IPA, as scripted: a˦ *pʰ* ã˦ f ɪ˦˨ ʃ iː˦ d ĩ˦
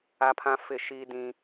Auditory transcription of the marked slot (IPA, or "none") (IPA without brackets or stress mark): pʰ